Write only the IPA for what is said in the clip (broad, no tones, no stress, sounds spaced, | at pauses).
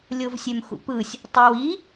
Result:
lʲ o v sʲ ø m x ṵ p ɯ sʲ | tˤ æ w i